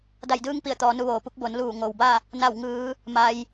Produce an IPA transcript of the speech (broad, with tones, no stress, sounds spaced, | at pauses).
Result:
d a˧˩ j d ɯː˧ ŋ p i˧˩ ə̯ t̪ ɔː˩˧ n u˧ ʋ oː˩ p u˧˥ k̚ b o˩˧ n l uː˧˩ ŋ o˩ w b a˥˨ | n a˧˩ w ŋ ɯː˩˧ | m a˩ j